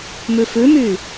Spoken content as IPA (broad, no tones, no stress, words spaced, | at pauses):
mʉfʉmy